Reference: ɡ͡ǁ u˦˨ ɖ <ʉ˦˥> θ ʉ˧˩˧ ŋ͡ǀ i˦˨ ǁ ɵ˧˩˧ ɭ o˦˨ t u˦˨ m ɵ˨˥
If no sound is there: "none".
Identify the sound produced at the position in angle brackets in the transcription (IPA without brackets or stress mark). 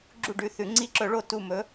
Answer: ʉ˩˧˩